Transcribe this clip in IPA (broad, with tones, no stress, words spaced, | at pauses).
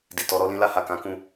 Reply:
di˨tɔ˨˦ɾɔ˦ lĩ˧la˧ ha˨kã˨˦kũ˦˨